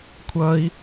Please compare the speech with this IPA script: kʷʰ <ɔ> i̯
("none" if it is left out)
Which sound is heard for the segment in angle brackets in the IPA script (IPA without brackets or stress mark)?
ʌ